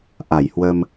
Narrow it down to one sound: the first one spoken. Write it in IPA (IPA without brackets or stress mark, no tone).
ʔ